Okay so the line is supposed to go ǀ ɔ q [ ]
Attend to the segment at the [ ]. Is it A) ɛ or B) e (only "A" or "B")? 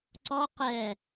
A